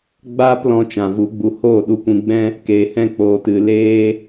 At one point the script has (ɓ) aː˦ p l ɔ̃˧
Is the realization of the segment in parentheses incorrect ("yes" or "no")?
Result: yes